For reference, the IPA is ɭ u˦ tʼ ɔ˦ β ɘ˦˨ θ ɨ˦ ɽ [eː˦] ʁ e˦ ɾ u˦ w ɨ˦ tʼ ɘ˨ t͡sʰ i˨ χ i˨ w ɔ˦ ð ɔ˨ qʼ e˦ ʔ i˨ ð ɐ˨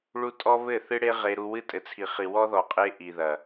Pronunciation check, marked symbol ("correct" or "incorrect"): incorrect